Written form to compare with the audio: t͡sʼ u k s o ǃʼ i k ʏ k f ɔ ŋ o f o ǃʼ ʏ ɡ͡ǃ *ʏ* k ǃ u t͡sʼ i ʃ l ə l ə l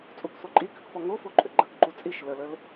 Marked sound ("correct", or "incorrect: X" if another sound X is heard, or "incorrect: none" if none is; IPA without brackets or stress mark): incorrect: ə